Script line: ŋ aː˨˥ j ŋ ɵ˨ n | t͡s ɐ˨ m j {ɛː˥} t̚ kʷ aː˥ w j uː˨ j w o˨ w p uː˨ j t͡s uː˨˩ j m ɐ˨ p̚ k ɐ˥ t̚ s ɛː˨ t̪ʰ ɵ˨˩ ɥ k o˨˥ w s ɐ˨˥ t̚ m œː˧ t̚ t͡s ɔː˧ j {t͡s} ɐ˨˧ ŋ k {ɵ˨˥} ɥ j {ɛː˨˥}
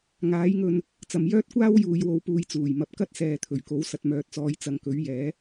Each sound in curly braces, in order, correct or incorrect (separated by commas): incorrect, correct, correct, correct